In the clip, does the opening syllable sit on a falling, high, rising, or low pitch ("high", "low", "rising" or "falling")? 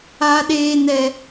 low